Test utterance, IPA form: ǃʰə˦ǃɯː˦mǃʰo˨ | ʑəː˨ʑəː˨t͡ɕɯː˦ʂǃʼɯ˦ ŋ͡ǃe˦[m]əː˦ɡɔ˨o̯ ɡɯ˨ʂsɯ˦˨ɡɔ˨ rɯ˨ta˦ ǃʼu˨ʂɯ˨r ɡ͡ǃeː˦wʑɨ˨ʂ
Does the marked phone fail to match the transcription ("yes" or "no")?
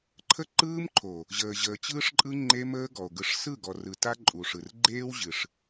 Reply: no